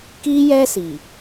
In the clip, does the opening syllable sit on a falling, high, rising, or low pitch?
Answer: high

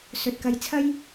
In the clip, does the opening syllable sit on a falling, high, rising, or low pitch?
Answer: low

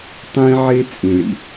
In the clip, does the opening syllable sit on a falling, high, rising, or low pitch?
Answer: high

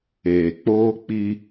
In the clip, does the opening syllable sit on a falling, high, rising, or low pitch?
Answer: low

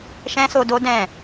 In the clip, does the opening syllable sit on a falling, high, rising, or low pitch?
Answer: high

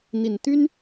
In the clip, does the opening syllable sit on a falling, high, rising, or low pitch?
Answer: low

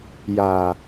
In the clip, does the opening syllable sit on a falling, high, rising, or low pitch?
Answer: low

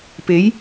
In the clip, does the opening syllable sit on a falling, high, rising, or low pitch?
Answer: rising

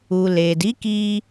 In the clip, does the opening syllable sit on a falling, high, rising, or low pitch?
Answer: low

